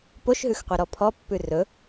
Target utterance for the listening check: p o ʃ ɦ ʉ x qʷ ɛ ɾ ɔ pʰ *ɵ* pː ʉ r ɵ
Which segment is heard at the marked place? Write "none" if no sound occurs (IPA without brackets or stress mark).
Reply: ɔ